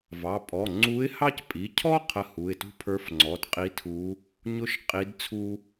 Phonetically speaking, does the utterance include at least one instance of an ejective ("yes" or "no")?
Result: yes